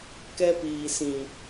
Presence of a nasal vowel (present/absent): present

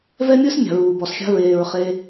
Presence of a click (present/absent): absent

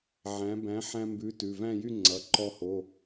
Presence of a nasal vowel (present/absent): present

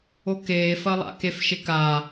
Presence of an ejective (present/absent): absent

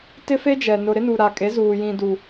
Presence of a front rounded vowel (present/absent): absent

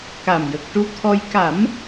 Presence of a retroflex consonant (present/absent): present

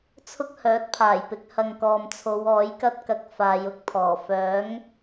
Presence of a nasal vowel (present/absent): absent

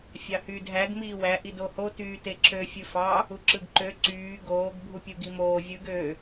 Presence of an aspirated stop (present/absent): absent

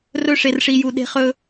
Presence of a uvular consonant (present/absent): present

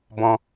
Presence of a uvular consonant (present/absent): absent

